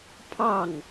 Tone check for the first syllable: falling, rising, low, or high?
falling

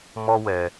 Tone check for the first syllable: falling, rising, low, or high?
high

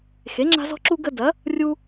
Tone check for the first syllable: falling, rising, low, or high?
rising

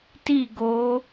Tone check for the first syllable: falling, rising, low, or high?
falling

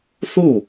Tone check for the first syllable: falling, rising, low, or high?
falling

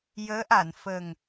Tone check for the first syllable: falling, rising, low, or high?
rising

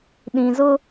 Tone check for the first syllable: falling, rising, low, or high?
low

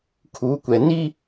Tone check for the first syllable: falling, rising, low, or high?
rising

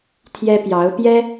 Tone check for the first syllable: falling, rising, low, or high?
high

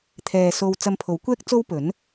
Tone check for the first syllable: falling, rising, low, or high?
low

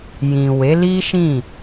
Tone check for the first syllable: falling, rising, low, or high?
low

